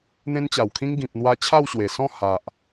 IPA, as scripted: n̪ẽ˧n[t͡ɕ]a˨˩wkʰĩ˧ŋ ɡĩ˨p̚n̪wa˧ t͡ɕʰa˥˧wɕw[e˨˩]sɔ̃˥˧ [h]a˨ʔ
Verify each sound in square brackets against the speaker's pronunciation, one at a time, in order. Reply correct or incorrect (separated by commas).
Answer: correct, correct, correct